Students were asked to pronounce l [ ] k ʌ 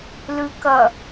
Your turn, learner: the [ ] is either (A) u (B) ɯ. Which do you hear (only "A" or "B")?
B